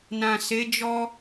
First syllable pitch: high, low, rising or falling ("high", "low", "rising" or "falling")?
low